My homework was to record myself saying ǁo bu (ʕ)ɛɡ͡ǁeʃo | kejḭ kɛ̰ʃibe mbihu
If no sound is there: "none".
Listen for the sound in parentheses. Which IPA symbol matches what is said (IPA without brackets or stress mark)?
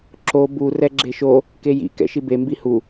r